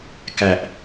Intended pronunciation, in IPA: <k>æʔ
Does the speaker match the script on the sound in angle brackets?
yes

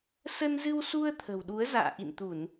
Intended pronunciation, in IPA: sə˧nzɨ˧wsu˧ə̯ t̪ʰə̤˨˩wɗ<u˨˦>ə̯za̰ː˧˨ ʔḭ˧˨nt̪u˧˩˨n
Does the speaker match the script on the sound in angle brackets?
yes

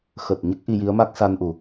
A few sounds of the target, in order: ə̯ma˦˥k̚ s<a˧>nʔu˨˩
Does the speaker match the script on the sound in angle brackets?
yes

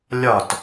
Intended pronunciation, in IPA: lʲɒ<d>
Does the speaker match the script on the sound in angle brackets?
no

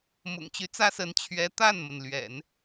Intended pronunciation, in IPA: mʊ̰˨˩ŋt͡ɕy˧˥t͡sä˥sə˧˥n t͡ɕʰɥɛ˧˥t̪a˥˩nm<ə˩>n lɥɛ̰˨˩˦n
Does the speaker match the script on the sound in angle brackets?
yes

